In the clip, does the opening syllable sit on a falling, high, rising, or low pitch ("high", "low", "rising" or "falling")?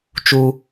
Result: high